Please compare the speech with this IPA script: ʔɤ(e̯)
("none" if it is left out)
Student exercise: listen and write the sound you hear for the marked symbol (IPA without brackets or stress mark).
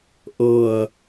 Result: ɐ̯